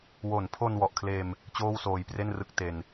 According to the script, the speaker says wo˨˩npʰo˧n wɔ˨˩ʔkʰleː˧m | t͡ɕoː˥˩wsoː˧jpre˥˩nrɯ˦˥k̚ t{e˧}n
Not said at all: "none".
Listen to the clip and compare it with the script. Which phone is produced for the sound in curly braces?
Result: e˧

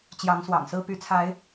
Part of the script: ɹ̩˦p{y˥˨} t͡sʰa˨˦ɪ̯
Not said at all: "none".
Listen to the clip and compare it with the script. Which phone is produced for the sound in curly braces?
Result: y˨˦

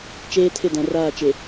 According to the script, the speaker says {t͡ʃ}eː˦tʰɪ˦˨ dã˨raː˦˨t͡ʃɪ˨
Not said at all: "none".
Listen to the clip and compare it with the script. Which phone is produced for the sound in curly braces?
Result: t͡ʃ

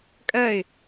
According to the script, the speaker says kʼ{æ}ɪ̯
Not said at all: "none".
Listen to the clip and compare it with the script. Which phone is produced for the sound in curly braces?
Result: ɜ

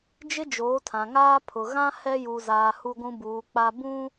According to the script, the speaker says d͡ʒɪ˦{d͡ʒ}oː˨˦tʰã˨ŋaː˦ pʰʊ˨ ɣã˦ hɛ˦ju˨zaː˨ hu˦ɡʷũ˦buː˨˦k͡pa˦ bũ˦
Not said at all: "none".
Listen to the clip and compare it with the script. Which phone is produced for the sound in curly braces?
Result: d͡ʒ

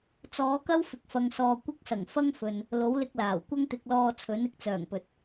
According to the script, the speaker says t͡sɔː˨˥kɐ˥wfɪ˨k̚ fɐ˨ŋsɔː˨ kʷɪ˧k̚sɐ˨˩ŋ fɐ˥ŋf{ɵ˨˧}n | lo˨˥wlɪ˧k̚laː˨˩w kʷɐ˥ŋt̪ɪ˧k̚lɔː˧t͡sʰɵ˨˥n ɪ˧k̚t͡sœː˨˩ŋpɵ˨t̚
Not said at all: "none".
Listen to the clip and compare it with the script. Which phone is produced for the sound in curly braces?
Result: ɵ˨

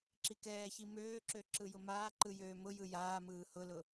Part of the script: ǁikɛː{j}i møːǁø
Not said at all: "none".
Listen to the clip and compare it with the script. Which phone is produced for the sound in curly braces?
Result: ç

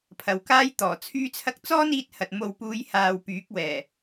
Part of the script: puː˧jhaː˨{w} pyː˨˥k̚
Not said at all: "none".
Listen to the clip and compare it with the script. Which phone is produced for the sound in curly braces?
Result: w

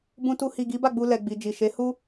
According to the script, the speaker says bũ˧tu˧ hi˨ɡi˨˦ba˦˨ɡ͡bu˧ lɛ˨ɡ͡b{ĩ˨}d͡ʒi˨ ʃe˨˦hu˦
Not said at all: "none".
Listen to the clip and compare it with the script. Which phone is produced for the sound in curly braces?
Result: i˨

